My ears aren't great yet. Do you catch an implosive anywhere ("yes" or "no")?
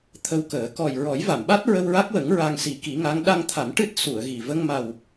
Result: yes